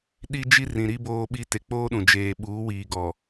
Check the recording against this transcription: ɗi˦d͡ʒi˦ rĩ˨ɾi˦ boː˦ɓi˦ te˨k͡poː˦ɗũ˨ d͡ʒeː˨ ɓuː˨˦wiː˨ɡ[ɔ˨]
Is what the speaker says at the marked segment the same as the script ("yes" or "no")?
yes